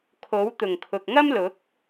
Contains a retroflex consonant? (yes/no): no